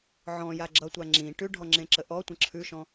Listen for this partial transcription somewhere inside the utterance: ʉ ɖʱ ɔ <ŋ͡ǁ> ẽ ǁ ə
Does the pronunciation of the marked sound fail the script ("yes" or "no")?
no